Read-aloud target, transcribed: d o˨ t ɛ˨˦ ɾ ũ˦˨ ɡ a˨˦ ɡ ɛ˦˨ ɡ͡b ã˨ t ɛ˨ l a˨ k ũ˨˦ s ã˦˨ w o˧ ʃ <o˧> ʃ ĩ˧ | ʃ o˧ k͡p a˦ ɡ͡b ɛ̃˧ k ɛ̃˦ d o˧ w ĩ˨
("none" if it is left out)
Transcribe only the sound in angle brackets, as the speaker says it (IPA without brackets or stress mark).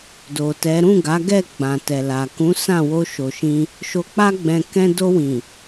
o˨